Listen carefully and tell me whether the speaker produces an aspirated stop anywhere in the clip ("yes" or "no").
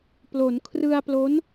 yes